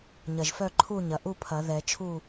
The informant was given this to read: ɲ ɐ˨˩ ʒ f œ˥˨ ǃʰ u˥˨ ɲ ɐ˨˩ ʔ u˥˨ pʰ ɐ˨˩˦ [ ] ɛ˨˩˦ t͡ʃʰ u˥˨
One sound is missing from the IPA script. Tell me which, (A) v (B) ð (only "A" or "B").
B